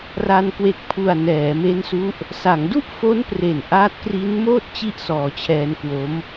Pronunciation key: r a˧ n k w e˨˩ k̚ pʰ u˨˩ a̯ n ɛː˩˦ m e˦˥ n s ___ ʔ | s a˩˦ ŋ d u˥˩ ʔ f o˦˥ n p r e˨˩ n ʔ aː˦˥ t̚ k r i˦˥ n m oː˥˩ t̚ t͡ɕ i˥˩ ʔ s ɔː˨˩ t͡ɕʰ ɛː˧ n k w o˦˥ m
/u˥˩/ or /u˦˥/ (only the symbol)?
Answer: u˦˥